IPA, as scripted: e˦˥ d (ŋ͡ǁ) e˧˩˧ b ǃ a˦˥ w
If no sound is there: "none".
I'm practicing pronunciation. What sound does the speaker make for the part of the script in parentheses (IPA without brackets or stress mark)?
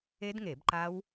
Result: ŋ